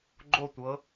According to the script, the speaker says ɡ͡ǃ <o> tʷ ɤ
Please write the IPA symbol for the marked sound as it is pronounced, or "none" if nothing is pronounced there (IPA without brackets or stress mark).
o